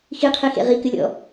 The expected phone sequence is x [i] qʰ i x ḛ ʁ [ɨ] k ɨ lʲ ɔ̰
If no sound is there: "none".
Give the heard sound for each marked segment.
i, i

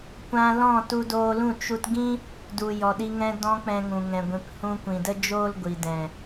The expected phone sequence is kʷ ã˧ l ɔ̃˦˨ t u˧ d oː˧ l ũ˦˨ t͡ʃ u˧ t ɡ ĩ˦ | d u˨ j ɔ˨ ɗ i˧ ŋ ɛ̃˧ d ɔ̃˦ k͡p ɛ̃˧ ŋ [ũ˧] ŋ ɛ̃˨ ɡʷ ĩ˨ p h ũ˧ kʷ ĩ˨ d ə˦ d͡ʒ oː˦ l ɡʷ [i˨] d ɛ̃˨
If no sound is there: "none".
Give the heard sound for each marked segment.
ũ˨, i˨

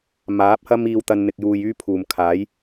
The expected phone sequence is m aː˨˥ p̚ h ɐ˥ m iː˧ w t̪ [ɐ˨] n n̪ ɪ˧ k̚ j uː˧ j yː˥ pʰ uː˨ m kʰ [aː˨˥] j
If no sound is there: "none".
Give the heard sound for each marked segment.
ɐ˧, aː˨˥

